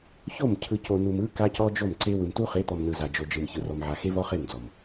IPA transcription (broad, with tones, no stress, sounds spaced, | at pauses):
ç o˦˨ m cʰ ɯ˨ c o˨ n u˨ m ɯ˦ k a˦ c ɔ˦ d͡ʒ o˦˨ m ǀ e˦ w ɯ˨ m t u˦ χ e˨˦ t̪ ɔ˨ m n ɯ˨ z a˨ d͡ʒ o˨ d͡ʒ ɯ˨ m ç ɯ˨ r ɔ˨ m ʕ a˨ x e˦ v ɔ˦ χ e˦˨ m d͡z ɔ˨ m